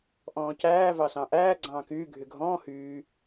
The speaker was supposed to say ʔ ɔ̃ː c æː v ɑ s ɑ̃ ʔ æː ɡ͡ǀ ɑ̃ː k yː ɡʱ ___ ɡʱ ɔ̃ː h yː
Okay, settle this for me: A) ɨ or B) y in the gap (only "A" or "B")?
B